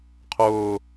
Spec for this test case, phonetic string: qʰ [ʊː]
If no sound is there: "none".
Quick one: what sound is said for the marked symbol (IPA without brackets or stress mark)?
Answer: ʊː